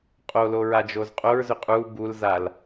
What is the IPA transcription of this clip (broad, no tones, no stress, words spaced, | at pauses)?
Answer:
qʼolo ɹad͡ʒozqʼoɹzʏ qʼu bulzal